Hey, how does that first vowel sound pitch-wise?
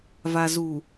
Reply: low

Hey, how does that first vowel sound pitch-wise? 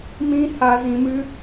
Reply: high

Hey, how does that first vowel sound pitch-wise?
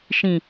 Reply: low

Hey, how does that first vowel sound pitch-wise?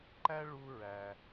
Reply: high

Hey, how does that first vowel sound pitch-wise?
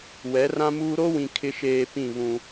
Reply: rising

